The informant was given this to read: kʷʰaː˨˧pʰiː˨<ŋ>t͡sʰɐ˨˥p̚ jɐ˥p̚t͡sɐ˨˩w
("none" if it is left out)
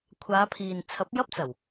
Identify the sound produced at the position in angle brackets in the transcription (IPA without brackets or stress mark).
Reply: n